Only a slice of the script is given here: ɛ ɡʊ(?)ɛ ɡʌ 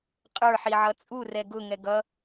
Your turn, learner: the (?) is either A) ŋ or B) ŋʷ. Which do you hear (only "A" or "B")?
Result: A